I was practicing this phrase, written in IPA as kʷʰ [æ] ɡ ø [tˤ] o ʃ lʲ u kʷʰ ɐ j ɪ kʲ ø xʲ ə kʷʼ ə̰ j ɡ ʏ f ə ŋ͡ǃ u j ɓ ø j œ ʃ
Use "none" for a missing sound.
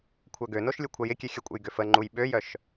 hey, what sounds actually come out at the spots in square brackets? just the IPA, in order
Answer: œ, n

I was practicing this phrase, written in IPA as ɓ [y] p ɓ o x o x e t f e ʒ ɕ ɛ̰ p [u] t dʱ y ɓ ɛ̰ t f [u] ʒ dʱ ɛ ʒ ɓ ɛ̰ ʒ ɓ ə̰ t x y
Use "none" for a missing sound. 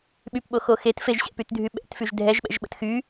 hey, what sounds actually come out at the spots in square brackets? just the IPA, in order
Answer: y, y, y

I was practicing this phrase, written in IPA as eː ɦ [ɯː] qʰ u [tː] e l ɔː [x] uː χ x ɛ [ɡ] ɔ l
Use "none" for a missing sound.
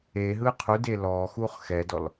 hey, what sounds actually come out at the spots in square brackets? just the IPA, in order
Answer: ɯː, d, x, d

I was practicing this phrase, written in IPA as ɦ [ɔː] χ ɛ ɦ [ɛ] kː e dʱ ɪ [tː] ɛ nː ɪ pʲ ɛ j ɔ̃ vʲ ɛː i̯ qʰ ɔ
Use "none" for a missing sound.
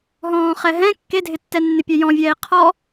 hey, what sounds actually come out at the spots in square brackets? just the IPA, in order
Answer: ɔ̃ː, ɛ̃, tː

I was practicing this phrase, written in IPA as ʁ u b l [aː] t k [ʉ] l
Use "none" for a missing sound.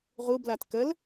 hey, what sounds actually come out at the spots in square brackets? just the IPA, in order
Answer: a, ə

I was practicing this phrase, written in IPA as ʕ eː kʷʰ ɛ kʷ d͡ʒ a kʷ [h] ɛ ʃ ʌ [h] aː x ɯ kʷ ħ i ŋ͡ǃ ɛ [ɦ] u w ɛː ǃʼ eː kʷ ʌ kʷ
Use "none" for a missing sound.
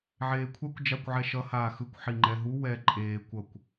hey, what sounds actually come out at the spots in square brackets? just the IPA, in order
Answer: ʕ, h, ɦ

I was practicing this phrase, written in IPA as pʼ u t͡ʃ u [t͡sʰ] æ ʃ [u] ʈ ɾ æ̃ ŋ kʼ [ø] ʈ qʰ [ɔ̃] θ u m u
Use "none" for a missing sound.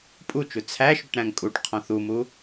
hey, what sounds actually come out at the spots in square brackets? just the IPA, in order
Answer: t͡sʰ, u, u, ɔ̃

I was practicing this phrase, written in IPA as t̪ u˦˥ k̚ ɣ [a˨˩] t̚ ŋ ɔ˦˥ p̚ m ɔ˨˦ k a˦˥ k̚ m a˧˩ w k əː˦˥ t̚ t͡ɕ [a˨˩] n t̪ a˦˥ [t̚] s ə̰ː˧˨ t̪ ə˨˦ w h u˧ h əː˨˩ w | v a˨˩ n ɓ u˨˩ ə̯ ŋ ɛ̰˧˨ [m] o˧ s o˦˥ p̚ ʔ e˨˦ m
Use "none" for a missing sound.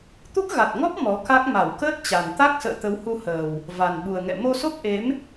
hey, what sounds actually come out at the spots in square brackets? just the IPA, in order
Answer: a˨˩, a˨˩, k̚, m

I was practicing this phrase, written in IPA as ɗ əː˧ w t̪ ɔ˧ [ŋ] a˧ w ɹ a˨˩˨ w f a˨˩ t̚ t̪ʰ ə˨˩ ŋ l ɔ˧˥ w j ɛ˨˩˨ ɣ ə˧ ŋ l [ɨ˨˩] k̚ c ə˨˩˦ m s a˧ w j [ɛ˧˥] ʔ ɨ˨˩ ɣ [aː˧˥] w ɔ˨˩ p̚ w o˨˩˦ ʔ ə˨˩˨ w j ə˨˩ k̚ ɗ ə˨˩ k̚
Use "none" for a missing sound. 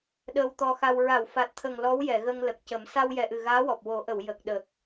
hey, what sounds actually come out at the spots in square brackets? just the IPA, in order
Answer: x, ə˨˩, ɛ˨˩, aː˧˥

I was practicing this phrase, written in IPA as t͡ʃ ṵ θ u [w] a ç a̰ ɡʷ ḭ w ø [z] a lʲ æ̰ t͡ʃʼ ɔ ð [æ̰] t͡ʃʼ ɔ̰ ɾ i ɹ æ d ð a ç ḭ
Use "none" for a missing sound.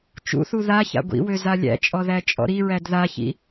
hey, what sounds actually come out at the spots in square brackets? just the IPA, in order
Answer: ð, z, æ

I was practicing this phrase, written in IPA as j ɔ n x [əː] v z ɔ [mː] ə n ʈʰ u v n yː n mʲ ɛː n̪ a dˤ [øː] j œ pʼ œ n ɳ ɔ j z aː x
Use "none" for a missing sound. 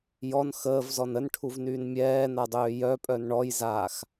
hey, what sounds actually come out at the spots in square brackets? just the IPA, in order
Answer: əː, n, øː

